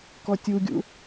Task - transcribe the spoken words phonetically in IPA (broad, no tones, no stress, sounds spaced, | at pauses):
k ɔ tʲ u ɡʲ ṵ